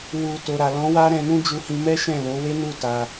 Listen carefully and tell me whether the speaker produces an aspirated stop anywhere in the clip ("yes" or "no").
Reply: no